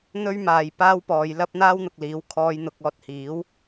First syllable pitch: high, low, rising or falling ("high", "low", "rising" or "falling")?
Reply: high